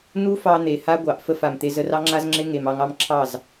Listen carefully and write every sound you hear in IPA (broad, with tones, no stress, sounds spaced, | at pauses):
n̪ u˦ f ɑ˧ n̪ e˨ h a˦ ɡʷ ɑ˨ ʔ f ə˦˨ f a˨ m t̪ e˧ z ə˧ r ɑ˦ ŋ͡ǁ a˦ z ŋ͡ǁ e˦ ŋ e˨ m ɑ˧ ŋ ɑ˦ m ǁʰ ɑ˦˨ z